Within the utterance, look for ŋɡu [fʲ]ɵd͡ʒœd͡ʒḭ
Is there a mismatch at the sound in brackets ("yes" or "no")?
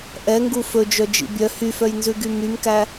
yes